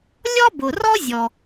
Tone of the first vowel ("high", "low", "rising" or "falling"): high